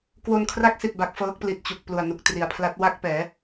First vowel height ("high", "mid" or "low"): mid